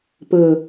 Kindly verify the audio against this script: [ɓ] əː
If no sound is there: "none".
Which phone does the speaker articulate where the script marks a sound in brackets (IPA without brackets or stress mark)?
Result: p